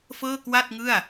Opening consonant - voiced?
no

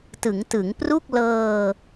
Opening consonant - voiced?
no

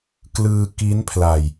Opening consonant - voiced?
no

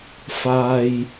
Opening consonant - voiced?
no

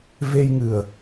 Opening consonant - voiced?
yes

